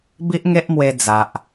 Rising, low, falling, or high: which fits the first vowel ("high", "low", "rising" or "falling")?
high